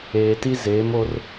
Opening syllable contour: low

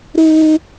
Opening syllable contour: high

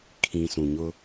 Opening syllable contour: low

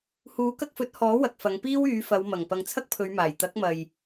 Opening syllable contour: rising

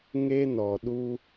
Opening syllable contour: high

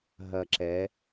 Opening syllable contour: low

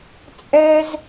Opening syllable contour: high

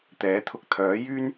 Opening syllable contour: rising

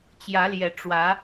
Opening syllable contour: rising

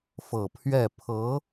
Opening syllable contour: low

